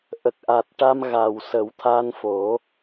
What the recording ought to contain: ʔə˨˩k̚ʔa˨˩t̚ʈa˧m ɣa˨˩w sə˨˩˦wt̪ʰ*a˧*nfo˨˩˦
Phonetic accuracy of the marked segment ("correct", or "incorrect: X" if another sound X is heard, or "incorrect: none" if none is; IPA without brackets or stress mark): correct